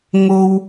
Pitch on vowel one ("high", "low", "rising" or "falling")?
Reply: high